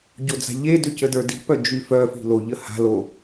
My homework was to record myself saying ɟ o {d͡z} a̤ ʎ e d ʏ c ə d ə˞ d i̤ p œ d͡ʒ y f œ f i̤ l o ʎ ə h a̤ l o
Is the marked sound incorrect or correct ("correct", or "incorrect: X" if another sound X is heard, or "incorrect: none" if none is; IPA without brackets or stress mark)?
correct